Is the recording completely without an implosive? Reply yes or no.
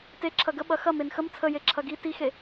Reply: no